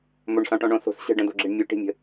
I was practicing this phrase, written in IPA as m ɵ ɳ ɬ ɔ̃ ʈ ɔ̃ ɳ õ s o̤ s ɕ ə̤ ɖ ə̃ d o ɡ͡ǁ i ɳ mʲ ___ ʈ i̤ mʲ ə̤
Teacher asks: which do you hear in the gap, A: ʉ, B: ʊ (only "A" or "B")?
A